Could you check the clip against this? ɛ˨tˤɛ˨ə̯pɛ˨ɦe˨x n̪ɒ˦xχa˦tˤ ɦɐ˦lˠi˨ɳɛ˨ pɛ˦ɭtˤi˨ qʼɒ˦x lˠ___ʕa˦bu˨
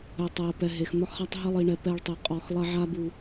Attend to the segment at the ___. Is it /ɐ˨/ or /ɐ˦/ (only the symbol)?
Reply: ɐ˦